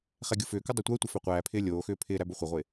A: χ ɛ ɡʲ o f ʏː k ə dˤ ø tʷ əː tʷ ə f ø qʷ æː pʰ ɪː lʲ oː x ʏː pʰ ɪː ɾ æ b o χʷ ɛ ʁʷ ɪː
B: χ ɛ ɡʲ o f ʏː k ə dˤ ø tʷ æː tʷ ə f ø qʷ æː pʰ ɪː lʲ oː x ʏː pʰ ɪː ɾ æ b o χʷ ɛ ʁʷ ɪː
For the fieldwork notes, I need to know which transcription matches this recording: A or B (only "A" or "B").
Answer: A